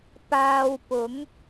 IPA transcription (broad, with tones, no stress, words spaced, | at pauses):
paː˧wpʊ˨˥ŋ